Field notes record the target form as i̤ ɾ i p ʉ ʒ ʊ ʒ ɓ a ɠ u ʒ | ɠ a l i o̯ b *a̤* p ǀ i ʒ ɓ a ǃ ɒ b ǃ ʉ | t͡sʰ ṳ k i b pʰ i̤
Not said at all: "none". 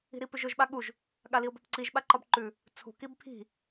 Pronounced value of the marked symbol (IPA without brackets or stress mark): a̤